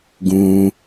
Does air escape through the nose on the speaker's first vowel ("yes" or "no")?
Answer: yes